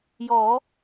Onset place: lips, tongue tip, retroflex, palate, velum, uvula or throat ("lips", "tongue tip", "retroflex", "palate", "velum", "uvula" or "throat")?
palate